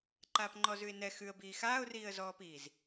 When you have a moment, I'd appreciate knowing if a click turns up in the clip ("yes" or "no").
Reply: yes